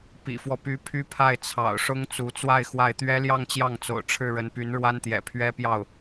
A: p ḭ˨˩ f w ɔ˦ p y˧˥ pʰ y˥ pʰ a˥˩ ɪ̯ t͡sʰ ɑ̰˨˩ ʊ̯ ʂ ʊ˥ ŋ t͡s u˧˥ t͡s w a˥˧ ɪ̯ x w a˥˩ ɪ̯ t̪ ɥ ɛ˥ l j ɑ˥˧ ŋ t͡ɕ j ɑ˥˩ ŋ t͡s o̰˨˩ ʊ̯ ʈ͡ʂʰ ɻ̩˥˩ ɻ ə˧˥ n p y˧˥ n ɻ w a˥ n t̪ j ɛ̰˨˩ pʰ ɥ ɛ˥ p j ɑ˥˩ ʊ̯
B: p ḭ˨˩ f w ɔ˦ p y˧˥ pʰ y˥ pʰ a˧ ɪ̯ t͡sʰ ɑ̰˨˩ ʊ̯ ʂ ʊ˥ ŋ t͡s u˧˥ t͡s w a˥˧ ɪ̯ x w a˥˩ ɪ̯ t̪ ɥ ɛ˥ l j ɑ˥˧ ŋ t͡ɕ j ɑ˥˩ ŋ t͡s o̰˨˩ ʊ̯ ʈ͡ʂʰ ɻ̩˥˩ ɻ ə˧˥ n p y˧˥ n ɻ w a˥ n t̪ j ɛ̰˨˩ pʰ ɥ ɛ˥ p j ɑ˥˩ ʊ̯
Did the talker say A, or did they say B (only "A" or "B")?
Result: A